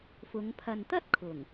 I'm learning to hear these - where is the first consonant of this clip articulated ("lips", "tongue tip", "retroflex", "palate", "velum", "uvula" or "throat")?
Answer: lips